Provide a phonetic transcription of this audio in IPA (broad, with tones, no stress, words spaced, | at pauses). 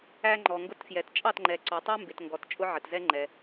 æ˦ŋ͡ǃɔ˨ŋɡʊ˦tfjɛ˨t t͡ʃʼɑ˦˨tŋ͡ǃɛ˨ǀɔ˨tˤɛ˦ mbɪ˨tŋɡɔ˨t t͡ʃʼʊ˦ʕə˨tzɛ˦ ŋ͡ǃɛ˨